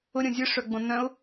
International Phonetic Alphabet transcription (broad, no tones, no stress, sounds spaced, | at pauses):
ʊ ɾʲ õ zʲ ɯ ʂ œ ɡ͡b õ n œ̃ ʊ̯